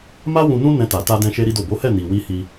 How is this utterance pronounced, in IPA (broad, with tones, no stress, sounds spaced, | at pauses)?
m a˦ w ũ˧ n ũ˦ n ɛ̃˧ t a˨ t a˧ d ɛ̃˧ ʃ e˦ ɾ i˦ d o˦˨ b o˨˦ h ɛ˦˨ n i˨ w i˧ h i˧